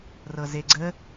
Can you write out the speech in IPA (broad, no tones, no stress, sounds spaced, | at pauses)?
r ɤ z e ɡ͡ǀ ə